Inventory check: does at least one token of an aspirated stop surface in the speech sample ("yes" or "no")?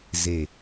no